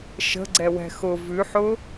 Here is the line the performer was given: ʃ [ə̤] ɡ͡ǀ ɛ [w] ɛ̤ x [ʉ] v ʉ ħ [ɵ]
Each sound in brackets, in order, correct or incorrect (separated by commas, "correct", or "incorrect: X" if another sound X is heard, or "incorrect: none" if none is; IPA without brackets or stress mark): correct, correct, incorrect: ʊ, incorrect: ʊ